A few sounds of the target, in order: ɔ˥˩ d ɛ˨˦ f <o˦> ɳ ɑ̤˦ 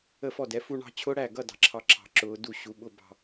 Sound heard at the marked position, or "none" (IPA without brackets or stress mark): u˦